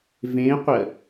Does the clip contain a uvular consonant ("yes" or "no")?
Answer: yes